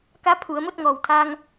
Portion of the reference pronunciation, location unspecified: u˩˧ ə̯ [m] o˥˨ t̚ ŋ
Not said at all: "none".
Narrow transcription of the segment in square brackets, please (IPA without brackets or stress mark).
m